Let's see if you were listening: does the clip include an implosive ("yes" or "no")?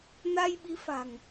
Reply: yes